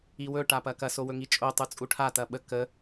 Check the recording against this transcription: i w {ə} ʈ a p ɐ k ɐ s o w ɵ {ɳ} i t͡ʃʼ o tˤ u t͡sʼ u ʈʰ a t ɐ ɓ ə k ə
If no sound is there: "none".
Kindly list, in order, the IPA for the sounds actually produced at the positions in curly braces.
ɵ, ŋ

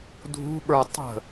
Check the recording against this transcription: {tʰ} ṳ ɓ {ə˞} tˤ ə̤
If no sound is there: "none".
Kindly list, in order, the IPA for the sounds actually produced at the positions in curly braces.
dʱ, ə˞

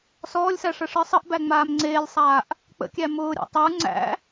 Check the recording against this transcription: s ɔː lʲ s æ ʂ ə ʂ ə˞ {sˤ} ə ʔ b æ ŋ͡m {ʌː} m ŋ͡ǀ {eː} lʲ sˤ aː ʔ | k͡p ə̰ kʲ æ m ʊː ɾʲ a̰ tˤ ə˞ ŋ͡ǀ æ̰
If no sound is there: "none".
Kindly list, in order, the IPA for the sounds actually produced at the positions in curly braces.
sˤ, aː, eː

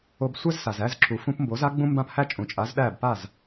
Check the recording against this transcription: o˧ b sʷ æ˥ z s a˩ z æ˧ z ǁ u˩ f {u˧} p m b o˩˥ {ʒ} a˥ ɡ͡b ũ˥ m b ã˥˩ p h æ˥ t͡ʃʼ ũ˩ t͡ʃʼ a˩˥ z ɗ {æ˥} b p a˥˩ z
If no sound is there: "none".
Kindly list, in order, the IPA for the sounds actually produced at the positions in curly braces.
ũ˧, z, æ˥˩

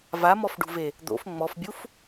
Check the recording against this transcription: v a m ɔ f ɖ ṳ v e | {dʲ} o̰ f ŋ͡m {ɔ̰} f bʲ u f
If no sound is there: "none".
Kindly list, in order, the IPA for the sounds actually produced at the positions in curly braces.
d̪, ɔ

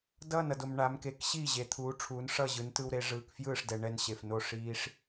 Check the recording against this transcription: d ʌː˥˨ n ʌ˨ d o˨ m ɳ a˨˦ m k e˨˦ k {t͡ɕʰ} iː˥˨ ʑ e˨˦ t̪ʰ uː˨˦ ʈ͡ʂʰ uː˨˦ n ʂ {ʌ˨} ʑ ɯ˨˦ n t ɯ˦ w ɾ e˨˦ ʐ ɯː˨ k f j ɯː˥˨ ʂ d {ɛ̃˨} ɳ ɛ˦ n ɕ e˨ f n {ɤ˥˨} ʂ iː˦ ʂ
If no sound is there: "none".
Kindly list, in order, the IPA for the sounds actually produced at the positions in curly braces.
ɕ, ʌ˥˨, ɛ˨, o˥˨

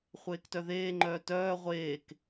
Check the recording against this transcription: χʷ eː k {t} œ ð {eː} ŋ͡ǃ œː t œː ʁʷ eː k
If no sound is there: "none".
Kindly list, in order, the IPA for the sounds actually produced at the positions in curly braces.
t, eː

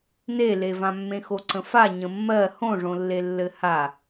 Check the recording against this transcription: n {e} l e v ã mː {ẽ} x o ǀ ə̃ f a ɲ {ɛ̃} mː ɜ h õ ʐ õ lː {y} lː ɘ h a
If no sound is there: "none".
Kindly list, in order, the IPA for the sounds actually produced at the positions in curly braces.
e, ẽ, ə̃, e

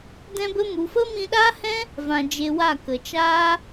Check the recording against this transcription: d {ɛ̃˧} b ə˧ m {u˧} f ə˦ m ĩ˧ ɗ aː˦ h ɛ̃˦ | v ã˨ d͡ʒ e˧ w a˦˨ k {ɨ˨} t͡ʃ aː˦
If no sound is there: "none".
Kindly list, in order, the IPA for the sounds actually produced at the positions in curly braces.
ɛ̃˧, u˨, ə˨

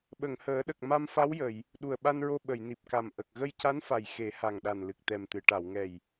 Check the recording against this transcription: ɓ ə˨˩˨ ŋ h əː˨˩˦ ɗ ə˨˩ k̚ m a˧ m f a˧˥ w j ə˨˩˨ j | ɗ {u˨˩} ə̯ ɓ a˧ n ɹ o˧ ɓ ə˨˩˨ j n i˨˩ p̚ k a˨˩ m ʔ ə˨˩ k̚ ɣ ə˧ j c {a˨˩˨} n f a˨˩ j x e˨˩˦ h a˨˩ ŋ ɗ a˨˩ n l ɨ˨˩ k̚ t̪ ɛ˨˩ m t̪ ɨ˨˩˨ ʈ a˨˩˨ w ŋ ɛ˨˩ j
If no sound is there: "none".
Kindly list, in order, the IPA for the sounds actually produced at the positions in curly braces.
u˨˩, a˧˥

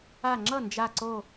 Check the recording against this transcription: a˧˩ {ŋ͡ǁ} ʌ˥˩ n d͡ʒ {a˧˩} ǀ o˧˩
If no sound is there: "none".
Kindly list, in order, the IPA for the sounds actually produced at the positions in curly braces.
ŋ͡ǁ, a˧˩

